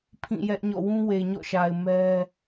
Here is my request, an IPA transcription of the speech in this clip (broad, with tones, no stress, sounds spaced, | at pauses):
pʰ ĩ˦˨ j ɛ˦ ʔ ɲ ɔ̰˦˨ w ũ˦ w e˨ ɲ ɔ̰˦˨ ʃ a˨ ɪ̯ m ɛ˦